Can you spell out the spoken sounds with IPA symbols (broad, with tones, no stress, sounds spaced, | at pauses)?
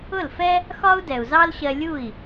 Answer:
ʊ˥˩ l f ɛ˥ | x ɒ˥ u̯ d ɛ˩ u̯ z ɑ˥ l ɕ ɜ˧ lʲ u˥˩ i̯